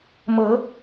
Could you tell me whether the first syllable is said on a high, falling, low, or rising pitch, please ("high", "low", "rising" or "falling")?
rising